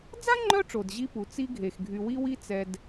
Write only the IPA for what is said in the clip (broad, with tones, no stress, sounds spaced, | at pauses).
d͡z a˥ ŋ͡ǃ œ˦ ʈ͡ʂ o˩ d ʑ i˦ p u˩ t͡s i˦ ɡʱ e˩ x ɡʱ y˨ w i˥ w i˥ t͡s ɛ˨ d